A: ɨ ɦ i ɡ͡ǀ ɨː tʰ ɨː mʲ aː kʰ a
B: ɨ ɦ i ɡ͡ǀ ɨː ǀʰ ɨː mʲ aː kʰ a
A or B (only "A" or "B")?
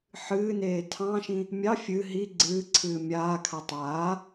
B